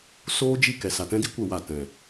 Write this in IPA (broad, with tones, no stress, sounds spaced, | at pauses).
s oː˦ d͡ʒ i˦˨ k ɛ˨ s a˨ t ɛ̃˦ d i˦ kʷ ə˦˨ w a˦˨ t ɛ̃˨